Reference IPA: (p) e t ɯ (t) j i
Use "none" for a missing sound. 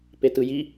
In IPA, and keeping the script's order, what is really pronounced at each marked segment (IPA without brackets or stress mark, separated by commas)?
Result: p, none